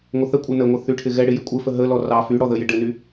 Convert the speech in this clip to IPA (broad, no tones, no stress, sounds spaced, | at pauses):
ŋʷ ə θ ə kʷʼ ɘ n ə ŋʷ ɘ θ y ʈʰ ɪ ɣ ɛ ɽ ɪ j ɪ kʷʼ ɪ f ə ɦ ə l ɔ r ɑ f y ɽ ɔ ð ə j ɪ ɖ ɘ n y